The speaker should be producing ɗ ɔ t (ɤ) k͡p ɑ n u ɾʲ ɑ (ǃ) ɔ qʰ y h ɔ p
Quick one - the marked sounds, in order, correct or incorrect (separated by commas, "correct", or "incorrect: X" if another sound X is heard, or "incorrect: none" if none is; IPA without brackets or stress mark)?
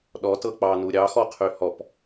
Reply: correct, incorrect: x